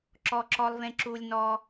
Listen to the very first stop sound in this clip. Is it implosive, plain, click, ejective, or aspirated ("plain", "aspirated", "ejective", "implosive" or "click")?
click